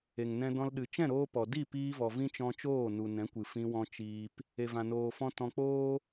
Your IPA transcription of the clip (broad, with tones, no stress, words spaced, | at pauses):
e˨ŋnɛ̃˧dɔ̃˧l ɗɨ˨t͡ʃɛ̃˦˨ɾoː˧pɔ˨ di˦˨ piː˧vɔ˨ vĩ˦t͡ʃɔ̃˧t͡ʃoː˦˨ nu˨nɛ̃˨˦kʷɨ˨ fĩ˧wɔ̃˧ t͡ʃiː˧p | e˨vã˨noː˨fɔ̃˧ tɔ̃˧k͡poː˦